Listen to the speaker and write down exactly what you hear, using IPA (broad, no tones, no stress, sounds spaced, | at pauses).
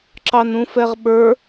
ǁ ɑ n ũ f ɛ ʁ ɓ ə˞